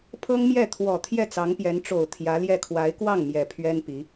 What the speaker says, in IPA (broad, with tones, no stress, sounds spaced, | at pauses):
pʰ ɤ˥ ŋ m j ɛ˥˩ t̪ʰ w ɔ˨˩ t̪ʰ j ɛ˥˩ t͡s ɑ˧˥ ŋ p j ɛ˧˥ n ʈ͡ʂ o˨˩ ʊ̯ t̪ʰ j ä˧˥ l j ɛ˥˩ kʰ w a˧˥ ɪ̯ k w ɑ˥˩ ŋ m j ɛ˨˩ pʰ ɥ ɛ˥ n p i˧˥